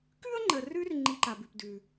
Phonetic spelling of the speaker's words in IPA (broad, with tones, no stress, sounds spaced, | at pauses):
k ʉ˥ ə̯ ŋ͡ǃ ə˨ r ʉ˦ r ŋ͡ǃ i˦ ǃ a˨ b ʉ˨ p d ʉ˩